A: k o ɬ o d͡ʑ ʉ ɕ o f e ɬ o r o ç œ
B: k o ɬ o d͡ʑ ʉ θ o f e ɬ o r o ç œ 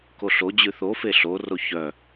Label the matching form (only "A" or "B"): B